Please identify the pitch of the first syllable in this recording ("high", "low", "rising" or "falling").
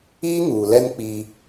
high